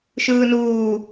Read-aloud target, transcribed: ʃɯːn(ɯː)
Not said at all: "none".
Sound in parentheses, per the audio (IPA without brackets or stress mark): uː